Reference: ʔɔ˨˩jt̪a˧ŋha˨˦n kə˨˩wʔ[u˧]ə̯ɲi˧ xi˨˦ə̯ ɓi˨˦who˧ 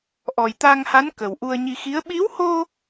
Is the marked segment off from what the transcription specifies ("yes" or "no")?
no